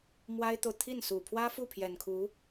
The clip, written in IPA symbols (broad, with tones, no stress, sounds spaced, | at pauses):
m w a˥ ɪ̯ t̪ o˨ ʊ̯ t̪ʰ i˥˩ n s u˨˩ pʰ w ä˥ f u˥˩ pʰ j ɛ˨˩ n kʰ u˧˥